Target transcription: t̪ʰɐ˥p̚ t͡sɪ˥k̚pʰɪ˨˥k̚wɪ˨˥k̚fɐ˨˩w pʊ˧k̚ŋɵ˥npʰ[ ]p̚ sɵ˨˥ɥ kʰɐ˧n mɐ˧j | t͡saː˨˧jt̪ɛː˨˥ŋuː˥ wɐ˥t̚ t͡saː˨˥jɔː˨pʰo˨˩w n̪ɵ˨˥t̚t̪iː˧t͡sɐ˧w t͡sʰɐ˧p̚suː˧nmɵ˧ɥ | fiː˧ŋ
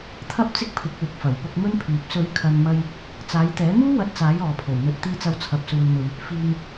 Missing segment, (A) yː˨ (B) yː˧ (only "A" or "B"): A